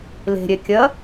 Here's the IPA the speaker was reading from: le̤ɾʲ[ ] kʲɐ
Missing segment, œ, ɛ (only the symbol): ɛ